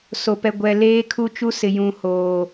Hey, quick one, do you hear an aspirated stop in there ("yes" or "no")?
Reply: yes